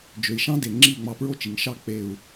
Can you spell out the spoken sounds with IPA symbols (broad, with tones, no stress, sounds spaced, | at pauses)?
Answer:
d͡ʒ ø˩ i̯ ʃ ɑ̃˦˥ d e˩ ŋ͡ǁ i˥˩ ŋ͡m ɑ˧˩ p ɹ o˥˩ t͡ʃ i˩ ŋ ʃ ɑ˥˩ k͡p e˧˩ u̯